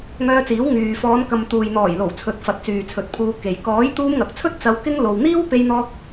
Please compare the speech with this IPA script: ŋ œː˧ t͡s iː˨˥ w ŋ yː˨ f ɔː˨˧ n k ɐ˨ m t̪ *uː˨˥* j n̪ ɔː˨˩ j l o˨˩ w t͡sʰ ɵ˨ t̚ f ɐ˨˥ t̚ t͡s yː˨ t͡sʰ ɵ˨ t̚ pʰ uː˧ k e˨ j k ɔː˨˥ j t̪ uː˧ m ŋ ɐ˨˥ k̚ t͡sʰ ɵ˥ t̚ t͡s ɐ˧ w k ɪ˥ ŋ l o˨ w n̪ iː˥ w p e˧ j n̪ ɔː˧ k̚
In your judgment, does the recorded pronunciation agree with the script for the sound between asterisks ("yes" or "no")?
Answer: no